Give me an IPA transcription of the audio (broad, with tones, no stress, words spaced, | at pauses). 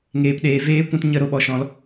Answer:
ŋeː˨pɗeː˨ veː˦ kʷũ˧tɲə˦˨ ɾo˧ɓɔ˨ ʃɔ̃˧l